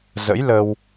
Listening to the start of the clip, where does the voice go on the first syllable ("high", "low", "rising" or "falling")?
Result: rising